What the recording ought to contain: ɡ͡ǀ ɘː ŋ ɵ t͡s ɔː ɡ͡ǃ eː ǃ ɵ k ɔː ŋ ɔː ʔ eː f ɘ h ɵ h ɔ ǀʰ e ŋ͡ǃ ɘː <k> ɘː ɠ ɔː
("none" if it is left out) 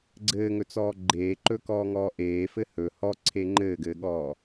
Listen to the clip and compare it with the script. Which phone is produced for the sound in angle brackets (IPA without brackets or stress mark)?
ɡ